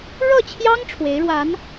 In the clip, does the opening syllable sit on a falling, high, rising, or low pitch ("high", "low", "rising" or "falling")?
falling